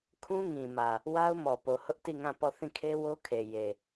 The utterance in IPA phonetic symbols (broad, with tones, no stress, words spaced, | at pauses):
kʰũ˦ŋĩ˨mä˨ | wa˦ʊ̯mɔ˨po˨ hʊ˦ʔti˦˨ŋã˦˨ pɔ˦˨ θĩ˦˨kʰe˦wo˦kʰe˨ je˨